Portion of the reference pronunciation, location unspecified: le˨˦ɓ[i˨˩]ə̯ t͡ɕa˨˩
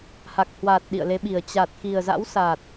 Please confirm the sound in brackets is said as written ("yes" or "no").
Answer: yes